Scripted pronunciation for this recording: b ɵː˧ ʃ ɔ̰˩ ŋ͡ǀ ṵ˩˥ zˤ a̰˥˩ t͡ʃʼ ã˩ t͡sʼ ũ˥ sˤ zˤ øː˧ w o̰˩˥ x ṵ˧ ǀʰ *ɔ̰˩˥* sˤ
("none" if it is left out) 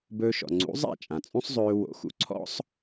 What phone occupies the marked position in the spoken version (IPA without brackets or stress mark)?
ɔ̰˥